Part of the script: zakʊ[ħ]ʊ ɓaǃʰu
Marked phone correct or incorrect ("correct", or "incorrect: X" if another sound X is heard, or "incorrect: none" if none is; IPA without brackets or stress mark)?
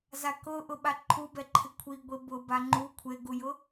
incorrect: ʔ